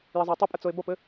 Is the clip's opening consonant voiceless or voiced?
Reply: voiced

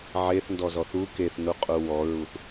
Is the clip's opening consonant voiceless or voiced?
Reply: voiced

